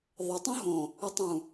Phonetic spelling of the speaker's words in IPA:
ðˤ ə tˤ õ ɦ õ | ə tˤ ũ

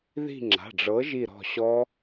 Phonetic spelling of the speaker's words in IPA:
ð i̤˦˨ ŋ͡ǁ a̤˩˧˩ ɖ͡ʐ ɤ˨˥ ʒ i˦˨ ɾ ɔ̤˦˨ ɕ ɔ˦˥

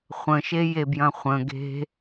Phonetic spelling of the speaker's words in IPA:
χʷ ə̃ ʃ e j e b j ɐ̃ χʷ ə̃ ɡ e̤

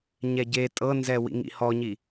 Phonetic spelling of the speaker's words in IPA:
ɲ ɛ ɟ e tʼ ɤ n z ɛ w ḭ ŋ ḭ h ɔ ɲ i

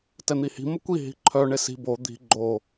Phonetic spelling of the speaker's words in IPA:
t ɛ n̪ i h i̤ m ə kʷ i ɦ i̤ ǃʰ œ ɳ e s i̤ b o d̪ i̤ ɡ͡ǃ o

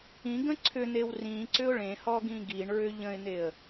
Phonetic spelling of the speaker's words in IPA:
ĩ ɡ ə̃ ǀʰ ʏ n̪ e w r ĩ ǀ ʏ ʊ̯ ɭ ẽ h ɔ ɡ ĩ ɡ i ɳ ɹ ʏ ʎ ə̃ ɪ̯ n̪ e ə̯

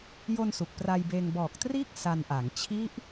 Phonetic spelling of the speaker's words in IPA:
j o˧ n s u˨˩ k̚ p r a˧ j b eː˧ ŋ b ɔː˨˩ k̚ t r iː˥˩ k̚ s a˧ n ʔ a˩˦ ŋ t͡ɕʰ i˦˥ ʔ

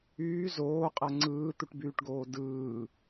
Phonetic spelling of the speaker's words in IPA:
yː z oː qʼ æ ŋ͡ǀ ɯː t̪ u ʈ b yː ʈ ɡ oː d ɯː

